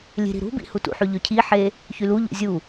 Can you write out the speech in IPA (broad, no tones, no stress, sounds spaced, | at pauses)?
lʲ e̤ ɾ i̤ ɾ ṳ b ḭ h u t ṵ ħ y ʎ ø cʰ i ħ e | ç y l u ʎ ṵ zʲ u